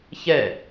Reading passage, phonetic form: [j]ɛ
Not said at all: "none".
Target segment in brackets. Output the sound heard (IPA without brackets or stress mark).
ç